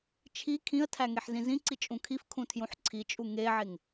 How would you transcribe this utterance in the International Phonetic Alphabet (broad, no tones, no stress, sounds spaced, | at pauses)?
t͡ʃʰ i kʰ ĩ ə̯ tʰ æ ŋ e ħ z ĩ z ĩ ǀ i t͡ʃʼ ũ kʰ i f kʰ ũ tʰ j ũ ħ ǀʰ i t͡ʃʼ u ŋ e ʕ e ŋ